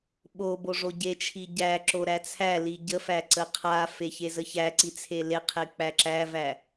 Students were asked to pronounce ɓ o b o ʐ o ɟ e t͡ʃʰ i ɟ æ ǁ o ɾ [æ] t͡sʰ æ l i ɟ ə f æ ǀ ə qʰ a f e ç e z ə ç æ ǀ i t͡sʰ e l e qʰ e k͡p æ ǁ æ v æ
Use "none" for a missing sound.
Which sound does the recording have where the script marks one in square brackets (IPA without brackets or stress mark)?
æ